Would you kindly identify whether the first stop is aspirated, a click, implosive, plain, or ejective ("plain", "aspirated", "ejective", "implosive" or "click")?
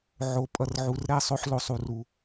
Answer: ejective